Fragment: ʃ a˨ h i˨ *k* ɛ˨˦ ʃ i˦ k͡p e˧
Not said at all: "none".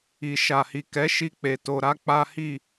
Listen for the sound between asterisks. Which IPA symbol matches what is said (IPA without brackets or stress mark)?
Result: k